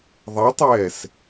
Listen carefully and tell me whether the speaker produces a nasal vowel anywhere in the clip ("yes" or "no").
no